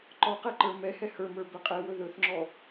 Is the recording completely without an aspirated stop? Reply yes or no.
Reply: yes